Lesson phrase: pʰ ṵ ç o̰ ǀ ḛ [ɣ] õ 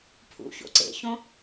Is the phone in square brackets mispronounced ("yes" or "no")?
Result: yes